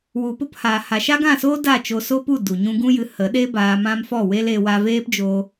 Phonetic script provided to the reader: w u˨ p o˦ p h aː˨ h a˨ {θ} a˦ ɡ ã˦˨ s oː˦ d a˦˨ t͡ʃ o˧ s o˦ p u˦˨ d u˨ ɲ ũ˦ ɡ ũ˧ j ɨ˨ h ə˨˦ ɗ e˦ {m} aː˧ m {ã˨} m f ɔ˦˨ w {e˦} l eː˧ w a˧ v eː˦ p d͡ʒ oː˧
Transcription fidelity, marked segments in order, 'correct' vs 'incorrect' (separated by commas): incorrect, incorrect, incorrect, correct